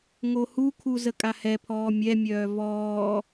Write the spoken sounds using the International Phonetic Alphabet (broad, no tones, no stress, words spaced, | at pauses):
ŋohukʰu zəkʼahɛpʰɔː mʲɛmʲœː vɔː